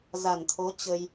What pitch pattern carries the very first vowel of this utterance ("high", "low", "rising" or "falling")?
low